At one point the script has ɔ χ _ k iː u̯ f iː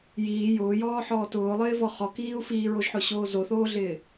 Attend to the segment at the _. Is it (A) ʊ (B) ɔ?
B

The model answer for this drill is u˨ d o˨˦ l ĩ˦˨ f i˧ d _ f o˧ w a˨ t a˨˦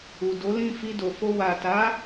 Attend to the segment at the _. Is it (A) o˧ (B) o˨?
B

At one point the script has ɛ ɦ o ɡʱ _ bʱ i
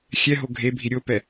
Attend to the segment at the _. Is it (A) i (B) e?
B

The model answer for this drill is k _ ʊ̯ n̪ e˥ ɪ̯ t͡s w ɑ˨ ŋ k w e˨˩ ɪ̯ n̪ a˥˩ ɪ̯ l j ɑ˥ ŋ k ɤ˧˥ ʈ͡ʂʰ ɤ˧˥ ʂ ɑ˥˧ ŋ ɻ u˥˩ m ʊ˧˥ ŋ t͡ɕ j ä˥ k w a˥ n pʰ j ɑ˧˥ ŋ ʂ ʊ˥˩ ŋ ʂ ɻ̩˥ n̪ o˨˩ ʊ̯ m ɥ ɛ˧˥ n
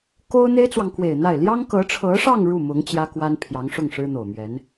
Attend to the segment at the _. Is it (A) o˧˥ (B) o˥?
B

